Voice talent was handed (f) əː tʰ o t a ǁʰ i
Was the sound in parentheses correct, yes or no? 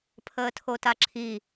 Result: no